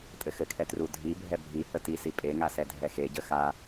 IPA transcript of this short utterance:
tʼɘxɘkʰɛ trudʱibʱɛ bʱi hətisi pʼeŋa sɛdʱɛxeɟə xa

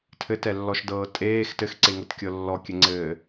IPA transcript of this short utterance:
tʰɘtɛlːɔʃdɤː tʼeːx tɘxǀeŋɤt kʲɤlːɔkʲɘŋ͡ǀɘː

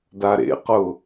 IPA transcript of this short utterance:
daɾḛqʊ

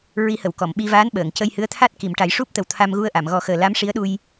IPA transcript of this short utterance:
ɹi˨˩˦hə˨˩˨w kɔ˨˩˨mɓi˧vaː˧˥n ɓəː˨˩˨ŋcə˧j hɨ˧˥ə̯t̪ʰa˦˥t̚ ki˨˩˨mʈa˨˩˦jʂu˦˥p̚t̪ə˨˩w t̪ʰa˧mɣu˧ə̯ʔa˨˩˨m ɣɔ˨˩˦xəː˨˩ la˧˥mʂi˧˥ə̯ɗu˧j

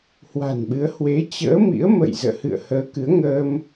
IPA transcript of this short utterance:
hwa̤˨˩nɓɨ˨˦ə̯ hwe˨˦ t͡ɕə̰ː˧˥mḭ˧˥ə̯mə̰˧˨j zə̰ː˧˨hɨ̰˧˨ə̯həː˨˦kɨ˨˦ə̯ ŋəː˧m

